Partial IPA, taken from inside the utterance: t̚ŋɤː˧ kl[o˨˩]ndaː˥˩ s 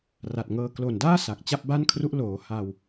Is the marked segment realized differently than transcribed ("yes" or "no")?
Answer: no